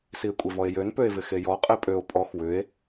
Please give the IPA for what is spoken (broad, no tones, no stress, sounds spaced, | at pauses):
s i e̯ kʷʼ e v ɔ e̯ j ø n p ø e̯ v ɪ x e j ɔ qʼ e pʼ ø o̯ pʼ ɔ x w ʏ e̯